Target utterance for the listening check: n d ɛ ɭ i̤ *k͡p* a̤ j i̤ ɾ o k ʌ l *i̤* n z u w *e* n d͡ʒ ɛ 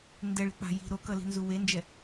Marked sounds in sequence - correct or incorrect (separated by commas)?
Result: correct, correct, correct